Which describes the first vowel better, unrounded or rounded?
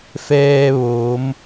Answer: unrounded